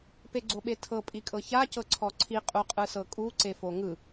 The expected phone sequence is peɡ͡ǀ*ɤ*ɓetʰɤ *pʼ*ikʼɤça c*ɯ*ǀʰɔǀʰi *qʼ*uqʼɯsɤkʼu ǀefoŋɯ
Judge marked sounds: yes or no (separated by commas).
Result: no, yes, no, yes